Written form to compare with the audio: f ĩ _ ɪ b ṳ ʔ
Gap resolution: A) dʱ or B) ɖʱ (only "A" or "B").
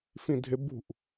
A